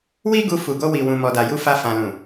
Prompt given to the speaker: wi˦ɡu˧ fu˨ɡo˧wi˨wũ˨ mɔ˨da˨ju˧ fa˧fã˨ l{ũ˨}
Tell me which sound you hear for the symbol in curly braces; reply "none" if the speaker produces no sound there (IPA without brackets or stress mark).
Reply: ũ˨